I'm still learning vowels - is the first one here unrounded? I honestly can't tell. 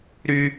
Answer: no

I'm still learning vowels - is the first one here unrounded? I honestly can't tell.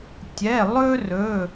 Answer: yes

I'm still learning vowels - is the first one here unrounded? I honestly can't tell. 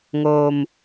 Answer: no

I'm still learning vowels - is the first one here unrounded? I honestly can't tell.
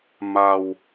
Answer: yes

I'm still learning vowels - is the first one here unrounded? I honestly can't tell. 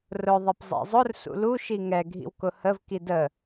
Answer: no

